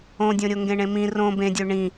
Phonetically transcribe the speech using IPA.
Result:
õ dʲ õ ɾʲ o ŋ ɡ ẽ ɳ ẽ m ĩ r õ b ẽ dʲ ø ɳ ĩ

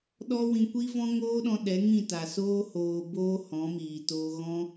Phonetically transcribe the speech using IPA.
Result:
ɗ ɔ˦ w ĩ˧ kʷ i˦ v ɔ̃˦ ŋ oː˦ ɗ ɔ̃˧ ɗ ɛ˨˦ ŋ ĩ˦˨ t a˨ s oː˧ h oː˨ b oː˧ h ɔ̃˨˦ m iː˨ t oː˧ ɣ ɔ̃˦

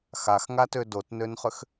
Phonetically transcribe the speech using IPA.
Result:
x a x ŋ a t ø d o t n ø n χ ʏ x

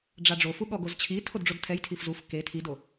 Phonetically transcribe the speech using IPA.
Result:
ɖ͡ʐ a ɖ͡ʐ o f u ɠ ɔ ɡ o z t͡ɕʰ i tʰ o d ɖ͡ʐ o d tʰ ɛ j tʰ i f z u f k e tʰ i d o

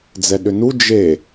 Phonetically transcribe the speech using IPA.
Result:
d͡z ɛ ɗ ʏ n u d͡ʒ e

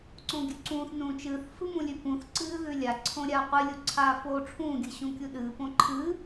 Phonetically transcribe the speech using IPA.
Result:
ǀ õ ɡʲ ʉ ǀ ũː θ n ũː t͡ʃ ɨː θ f ɨ m ũ lʲ ʉ p ũ θ ǀ ɨː ð ʉ lʲ a ǀʰ õ ɾʲ aː qʷ ɨ lʲ u ǀʰ aː f oː ʈ͡ʂʰ ũː ɡʲ ɨ ɕ ũ kʲ u ɗ ɨː p õ ǃʰ ɨː

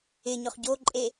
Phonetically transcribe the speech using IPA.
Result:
ɪ ɲ ʊ χ ɟ o ǃʼ e

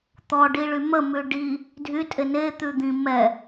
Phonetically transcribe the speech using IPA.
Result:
t̪ ɔ ɖ i ɭ y m ə m ʉ ɖ i | dʱ y tʼ e n e t̪ ʉ d̪ ĩ m ɛ

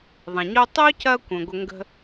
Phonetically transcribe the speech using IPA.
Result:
ðˤ ɐ̃˩ ɲ o˦ tˤ o˥ c ɐ˦ kʷ ə̃ː˨ ɡʷ ə˦ ŋ ɡ ə̤˦

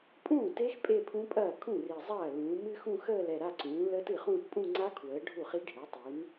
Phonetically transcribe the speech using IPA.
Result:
pʼ ũː˥˩ t e˦˥ x pʼ e˥˧ pʰ ũ˦˥ pʼ ɐː˥˩ kʰ ũ˥˩ r i˨˩ zˤ ɐː˥˩ l ũː˩˥ m ɨ˦˥ x ũ˥˧ x əː˥˧ l ɛ˨˩ ɾ a˥˧ ǀ ũː˩˥ l əː˦˥ t ɨ˥˩ χ ũː˥˧ t pʼ ũ˥˧ ŋ͡ǀ a˦˥ kʰ w əː˩˥ ɖʱ u˥˩ χ i˦˥ ɖʱ e˩˥ tˤ i˩˥ n

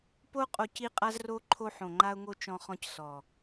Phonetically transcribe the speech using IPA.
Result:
p o˦ qʼ o˧ c i˦ qʼ a˦ z r o˦ ǃʰ o˧ ħ õ˨ ŋ͡ǃ a˧ ʊ̯ ŋ o˧ t͡ʃ ɔ̃˧ χ ɔ̃˧ c s ɔ˨

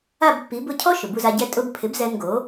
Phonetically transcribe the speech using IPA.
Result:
a˥˩ b pː i˩˥ b ʊ˥˩ cʰ ɔ˥ ʃ ʊ˩ b u˧ z a˧ ɟ ɛ˥˩ tʼ ʊ˧ b pʰ ɪ˩˥ b z ɛ˧ n ɡ o˩˥

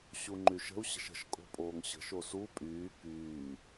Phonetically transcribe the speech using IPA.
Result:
ɕ u ŋ͡ǃ y ʃ ə̤ u̯ ɕ ə̤ ʃ ə̤ ʃ kʼ o̤ pʼ oː ŋ ɕ ə̤ ʃ o s u pʼ yː k yː

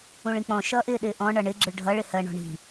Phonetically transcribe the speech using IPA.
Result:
ũ ɭ ĩ k͡p ɔ̃ ʃ ʌː ʔ ɪː ɗ ɪː ʔ ɔ̃ ɳ ʌ ɳ ɪ ɡ͡ǁ ɪ ɭ ɖʱ ʌ ɭ ɪ h ɜ ɳ ɔ̤ ɳ i̤

